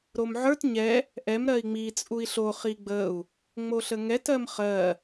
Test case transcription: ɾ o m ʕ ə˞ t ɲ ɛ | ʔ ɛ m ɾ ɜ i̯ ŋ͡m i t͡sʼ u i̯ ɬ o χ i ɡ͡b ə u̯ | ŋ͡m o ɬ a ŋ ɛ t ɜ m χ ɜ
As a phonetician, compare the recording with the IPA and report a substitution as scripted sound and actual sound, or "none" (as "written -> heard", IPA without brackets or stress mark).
a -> ə